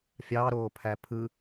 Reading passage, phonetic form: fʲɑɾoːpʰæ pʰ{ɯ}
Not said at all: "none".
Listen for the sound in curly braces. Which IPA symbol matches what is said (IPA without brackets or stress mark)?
ɯ